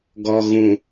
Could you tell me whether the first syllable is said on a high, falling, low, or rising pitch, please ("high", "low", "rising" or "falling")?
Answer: low